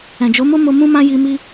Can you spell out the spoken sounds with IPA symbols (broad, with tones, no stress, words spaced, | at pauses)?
ɛ̃˨d͡ʒo˨˦mo˦mo˧ mũ˦mã˦ji˧ mi˦